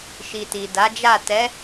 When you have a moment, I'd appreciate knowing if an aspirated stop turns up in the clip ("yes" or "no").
no